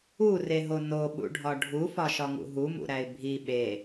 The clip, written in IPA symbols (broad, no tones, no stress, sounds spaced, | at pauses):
u r e ɦ o n o ɓ ṵ ɖʱ ɒ ɖʱ u f ɒ ʃ ɒ ŋ ṵ ɦ u m ṵ ɾ æ ɪ̯ bʱ i ɓ e